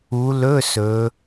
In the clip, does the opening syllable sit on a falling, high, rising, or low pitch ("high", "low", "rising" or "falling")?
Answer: rising